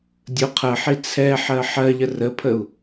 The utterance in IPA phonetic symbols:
dʲ ʊ qʰ ɜ ħ i t͡sʰ ɛ ħ ɜ ħ ɜ ʎ ə r ə pʰ ə u̯

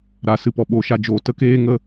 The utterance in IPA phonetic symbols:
ɾ a˨ s ɨ˨ p ɔ˨ ɓ o˨ ʃ a˧ d͡ʒ oː˨ t ə˦ k eː˦ ŋ ə˦

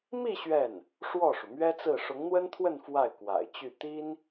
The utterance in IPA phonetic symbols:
m i˥˧ ɕ ɥ ɛ˥˩ n | ʂ w ɔ˥˩ ʂ u˩ m ɥ ɛ˥ t͡s ɹ̩˥˩ ʂ ʊ˧˥ ŋ n̪ w ə˥ n t̪ʰ w ə˥˧ n f w a˥˩ ɪ̯ k w a̰˨˩ ɪ̯ t͡ɕ y˥˩ t̪ i˥ n

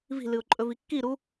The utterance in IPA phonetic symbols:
v i̤ l ɨ ʊ̯ ǃʼ ɵ v i kː i ɾ u

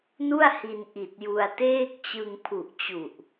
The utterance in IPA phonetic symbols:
n u˥˩ a̯ h i˧ n ʔ i˨˩ t̚ j u˧ a̯ t eː˥˩ k̚ t͡ɕ ɯ˧ ŋ pʰ u˨˩ ʔ t͡ɕ u˨˩ ʔ

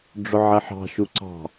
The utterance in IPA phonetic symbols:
ɖ͡ʐ ʊ ʕ ɛ ħ ɑ̤ ʃ u ǀ ɑ̤

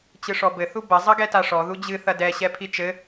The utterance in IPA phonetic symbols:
t͡ɕ ɨ ʂ ɔ b ɘ θ u b ɐ zˤ ɐ ɡ ɛ t a ʂ ɔ ð u d͡ʑ ɨ θ ɐ d ɛ ɕ ɛ pʰ i t͡ʃ ɘ

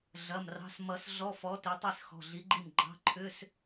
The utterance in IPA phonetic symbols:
ɮ ɐ˩˧˩ m r ɑ̤˩˧˩ s m ʌ˨˩˦ s ɮ ɔ˧˥˧ f ɔ˨˥ t ʏ˨˥ tˤ i˥˩ s x ɔ̤˩˧˩ ɮ i˨˥ ɡ͡ǃ i˥˩ m ɡ͡ǃ ɑ̤˧˥˧ ǃʰ ʏ˧˥˧ s

